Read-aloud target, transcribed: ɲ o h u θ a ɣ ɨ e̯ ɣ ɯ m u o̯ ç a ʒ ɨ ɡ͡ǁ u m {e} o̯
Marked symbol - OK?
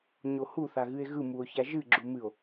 no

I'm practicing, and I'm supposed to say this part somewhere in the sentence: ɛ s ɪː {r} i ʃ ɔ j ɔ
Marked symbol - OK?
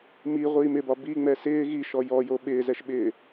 no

